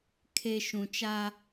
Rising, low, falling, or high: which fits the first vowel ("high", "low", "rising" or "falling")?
low